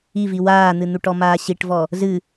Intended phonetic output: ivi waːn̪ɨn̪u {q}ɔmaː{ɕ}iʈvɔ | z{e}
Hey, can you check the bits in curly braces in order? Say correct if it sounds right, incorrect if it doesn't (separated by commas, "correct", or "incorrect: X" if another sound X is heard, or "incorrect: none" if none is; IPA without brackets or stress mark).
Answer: incorrect: ʈ, correct, incorrect: ɨ